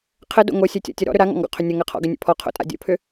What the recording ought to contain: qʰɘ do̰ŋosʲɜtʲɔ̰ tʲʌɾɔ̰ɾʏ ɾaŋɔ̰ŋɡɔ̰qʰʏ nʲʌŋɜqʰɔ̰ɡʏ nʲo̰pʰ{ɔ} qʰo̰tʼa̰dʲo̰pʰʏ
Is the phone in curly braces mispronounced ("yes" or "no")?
no